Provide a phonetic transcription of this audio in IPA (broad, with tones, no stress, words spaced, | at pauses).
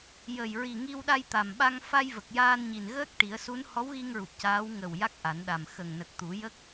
jə˨˩jɹi˨˩ ŋi˧wɗa˧jt̪a˨˩mɓa˧ŋ fa˧jvə˨˩k̚ jaː˧nɲi˨˩n ɣəː˦˥k̚ ʈi˨˩˦ə̯su˧˥n hɔ˧˥wɣi˧ŋɹu˨˩p̚ caː˧˥w ŋə˨˩w ja˦˥k̚ʔa˨˩˦nɗa˨˩m xə˨˩ŋnə˨˩k̚t̪u˨˩˦ jə˦˥k̚